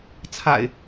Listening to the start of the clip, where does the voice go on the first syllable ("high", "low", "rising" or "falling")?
low